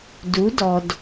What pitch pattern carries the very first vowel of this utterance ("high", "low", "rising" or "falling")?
rising